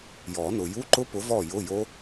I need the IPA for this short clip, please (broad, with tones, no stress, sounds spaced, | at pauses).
j ɔ˨˩˦ n ʊ˨ j u˧˥˧ ǃ ʊ˦˥ p ʊ˨˥ v ɔ˥˨ j ʊ˧˥˧ j o˦˥